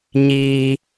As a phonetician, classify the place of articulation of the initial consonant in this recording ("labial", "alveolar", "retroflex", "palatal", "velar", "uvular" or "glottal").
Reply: palatal